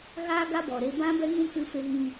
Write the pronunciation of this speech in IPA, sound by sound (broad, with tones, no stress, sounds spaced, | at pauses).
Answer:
ɣ aː˦ ɡ a˦ b ɔ˨ ɾ e˧ b ã˦ b ɛ˦ ŋ ũ˦ k ɨ˧ f e˧ ɣ ĩ˧